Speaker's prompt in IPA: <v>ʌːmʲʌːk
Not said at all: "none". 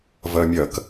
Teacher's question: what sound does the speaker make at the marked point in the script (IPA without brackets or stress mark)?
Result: v